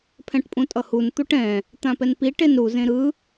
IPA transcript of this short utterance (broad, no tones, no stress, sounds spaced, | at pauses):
pʰ ɛ̃ ʈ pʼ ũ tʼ ʌ h u n t̪ u ʈ ɛ̃ | t̪ ã p ɛ n p i ʈ e n ɾ u z ẽ ɾ ɯ